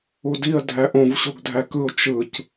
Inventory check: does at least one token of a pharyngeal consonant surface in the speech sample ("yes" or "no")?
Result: no